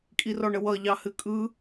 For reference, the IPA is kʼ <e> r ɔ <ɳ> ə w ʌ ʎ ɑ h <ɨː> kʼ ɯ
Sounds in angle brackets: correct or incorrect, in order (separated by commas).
incorrect, correct, incorrect